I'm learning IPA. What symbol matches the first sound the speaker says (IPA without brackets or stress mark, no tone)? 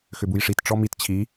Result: x